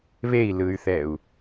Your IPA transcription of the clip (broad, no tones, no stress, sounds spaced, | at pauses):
β e i̯ l ɯ y̯ θ ɛ u̯